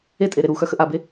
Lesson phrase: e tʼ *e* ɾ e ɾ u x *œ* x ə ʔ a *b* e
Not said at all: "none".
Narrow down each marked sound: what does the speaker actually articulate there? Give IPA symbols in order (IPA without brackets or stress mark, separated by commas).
e, œ, b